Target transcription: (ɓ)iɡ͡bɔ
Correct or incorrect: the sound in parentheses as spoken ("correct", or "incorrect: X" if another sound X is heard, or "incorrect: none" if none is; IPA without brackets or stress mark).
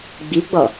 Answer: incorrect: ɡ͡b